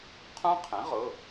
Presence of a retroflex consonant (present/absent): absent